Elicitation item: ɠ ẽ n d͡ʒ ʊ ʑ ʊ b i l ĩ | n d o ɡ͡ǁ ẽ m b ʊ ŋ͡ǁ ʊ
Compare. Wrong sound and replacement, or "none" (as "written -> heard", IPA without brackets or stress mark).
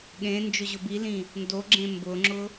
none